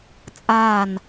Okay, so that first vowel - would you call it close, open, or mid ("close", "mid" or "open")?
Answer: open